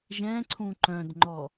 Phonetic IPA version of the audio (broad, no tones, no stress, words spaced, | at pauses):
ʒɛ̃ǀʰũ ǃœ̃dŋ͡ǃɔ